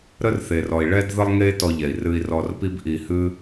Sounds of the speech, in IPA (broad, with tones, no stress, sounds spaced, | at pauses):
ɾ ə˦ r θ e˨ r ɔ˨ i̯ ɭ ɛ˦ d ð ə˦ lˠ ŋ e˦ t ɔ˧ ʎ ɛ˨ i̯ r ɨ˧ i̯ r ɔ˧ r p i˦ b ʔ i˧ h ɨ˦